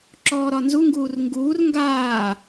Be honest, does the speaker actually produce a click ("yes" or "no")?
yes